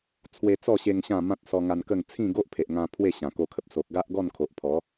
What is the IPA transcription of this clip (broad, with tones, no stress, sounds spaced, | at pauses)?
t͡sʰ w e˧ t͡s ɔ˥˧ ɕ e˧ ŋ ɕ ã˥˧ m ã˦ t̚ s ɔ˧ ŋ a˧ n k ə˥˧ ŋ t͡sʰ ĩ˥˧ ɡ o˦ ʔ pʰ e˨ ʔ ŋ ã˧ pʰ w e˥˧ ɕ ã˨˩ k o˧ kʰ ə˨ p̚ s o˨ k̚ ɡ a˦ ʔ ɡ ɔ˥˧ n kʰ o˨ ʔ pʰ ɔ˨˦